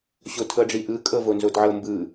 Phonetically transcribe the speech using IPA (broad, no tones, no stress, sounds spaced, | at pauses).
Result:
ɕ o tʰ ɤ ɖ͡ʐ i ʔ ɯ kʼ ɤ v o n z o d ʕ ɤ m b ɯ